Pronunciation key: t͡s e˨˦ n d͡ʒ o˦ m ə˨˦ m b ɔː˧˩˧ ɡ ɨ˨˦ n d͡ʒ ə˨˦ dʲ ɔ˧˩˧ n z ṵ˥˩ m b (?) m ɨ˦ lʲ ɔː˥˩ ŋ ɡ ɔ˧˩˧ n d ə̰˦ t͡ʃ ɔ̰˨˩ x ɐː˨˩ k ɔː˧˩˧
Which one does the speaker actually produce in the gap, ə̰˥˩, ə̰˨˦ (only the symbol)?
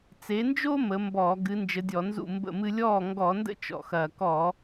ə̰˥˩